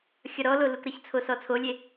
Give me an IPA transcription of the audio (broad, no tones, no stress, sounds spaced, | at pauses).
xʲ ʌ ɾ ɔ l o l u k ɾ ə ç t͡sʰ o s ɔ t͡sʰ o lʲ e